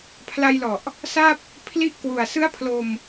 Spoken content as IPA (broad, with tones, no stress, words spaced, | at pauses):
pʰla˧jlɔ˨˩ʔ | sa˥˩p̚ | pʰli˦˥ʔkwu˨˩a̯ sɯ˦˥a̯pʰlo˧m